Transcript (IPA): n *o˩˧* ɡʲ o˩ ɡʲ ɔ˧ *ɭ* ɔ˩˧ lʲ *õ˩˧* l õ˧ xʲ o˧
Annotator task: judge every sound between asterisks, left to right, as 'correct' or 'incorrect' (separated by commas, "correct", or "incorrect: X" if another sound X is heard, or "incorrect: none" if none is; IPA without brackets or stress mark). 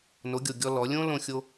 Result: correct, incorrect: l, incorrect: õ˥